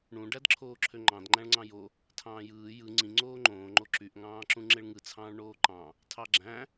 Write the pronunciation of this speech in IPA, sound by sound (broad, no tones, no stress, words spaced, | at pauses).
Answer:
ɳũ ɖædǁʰoːǁʰøŋ͡ǃɑ̃d ŋ͡ǃæ̃ɭŋ͡ǀɑ̃jo | tʰɑ̃ːjɯː jɯ ŋ͡ǀĩ ŋ͡ǀoːŋ͡ǃõː ŋ͡ǃoǁyʔ ŋɑ̃ːǁũŋ͡ǁeɭŋɯ t͡sʰɑ̃ːɭɳoːǃɑ̃ | tʰɑɡ͡ǁæ̃